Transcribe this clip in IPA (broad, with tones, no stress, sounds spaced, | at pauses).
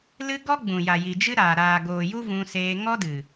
l ɨ˦ ɡ ɔ˦ ɡ͡b ũ˨ j a˨ j i˨ d͡ʒ ɨ˦ ɾ aː˨ ɾ aː˨ ɡ oː˨ j u˦ v ũ˧ s eː˧ ŋ ɔ˦ d ɨ˨